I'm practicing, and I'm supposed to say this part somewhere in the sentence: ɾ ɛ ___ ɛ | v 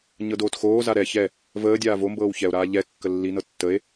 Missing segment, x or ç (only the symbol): ç